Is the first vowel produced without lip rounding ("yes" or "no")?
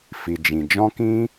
yes